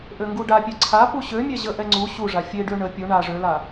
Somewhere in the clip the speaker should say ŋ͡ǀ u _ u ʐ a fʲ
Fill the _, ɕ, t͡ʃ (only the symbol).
ɕ